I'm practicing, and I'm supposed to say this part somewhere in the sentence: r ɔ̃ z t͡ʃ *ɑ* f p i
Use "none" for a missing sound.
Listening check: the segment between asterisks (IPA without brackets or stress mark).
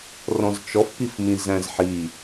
ɔ